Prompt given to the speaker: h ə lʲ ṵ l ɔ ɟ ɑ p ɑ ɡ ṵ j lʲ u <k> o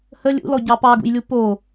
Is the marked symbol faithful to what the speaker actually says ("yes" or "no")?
no